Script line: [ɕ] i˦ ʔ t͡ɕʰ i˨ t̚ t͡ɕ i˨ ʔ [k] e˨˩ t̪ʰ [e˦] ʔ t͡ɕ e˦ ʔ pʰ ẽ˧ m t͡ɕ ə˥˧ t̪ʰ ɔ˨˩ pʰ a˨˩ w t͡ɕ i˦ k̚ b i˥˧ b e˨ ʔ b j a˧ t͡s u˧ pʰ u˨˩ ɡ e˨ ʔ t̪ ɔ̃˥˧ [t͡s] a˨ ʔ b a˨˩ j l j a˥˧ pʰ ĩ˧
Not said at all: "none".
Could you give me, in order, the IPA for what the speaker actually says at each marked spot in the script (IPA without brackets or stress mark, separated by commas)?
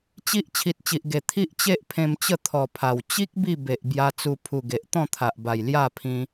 t͡ɕ, ɡ, i˦, t̪ʰ